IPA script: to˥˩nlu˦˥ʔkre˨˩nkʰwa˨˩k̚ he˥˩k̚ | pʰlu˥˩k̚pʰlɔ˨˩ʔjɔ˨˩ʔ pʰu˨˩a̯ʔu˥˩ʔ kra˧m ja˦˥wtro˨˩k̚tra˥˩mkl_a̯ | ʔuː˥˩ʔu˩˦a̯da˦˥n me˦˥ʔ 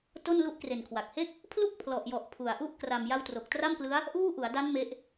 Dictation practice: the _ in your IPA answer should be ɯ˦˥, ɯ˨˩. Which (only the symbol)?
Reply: ɯ˦˥